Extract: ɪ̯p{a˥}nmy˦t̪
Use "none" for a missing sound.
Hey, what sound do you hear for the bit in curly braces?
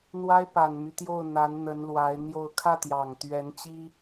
a˨˩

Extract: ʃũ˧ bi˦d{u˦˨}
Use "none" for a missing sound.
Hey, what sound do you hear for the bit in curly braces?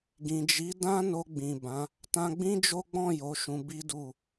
u˦˨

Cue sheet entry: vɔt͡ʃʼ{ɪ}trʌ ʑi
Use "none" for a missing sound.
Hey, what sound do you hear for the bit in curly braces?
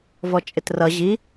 ɪ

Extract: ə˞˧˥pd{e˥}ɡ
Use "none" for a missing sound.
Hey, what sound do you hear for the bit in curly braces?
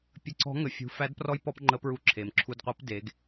e˩˧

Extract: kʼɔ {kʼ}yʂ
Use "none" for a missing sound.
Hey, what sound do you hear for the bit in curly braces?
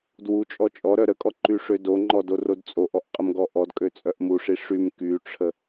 ǃ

